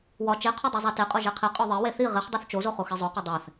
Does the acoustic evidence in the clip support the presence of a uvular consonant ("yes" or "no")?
yes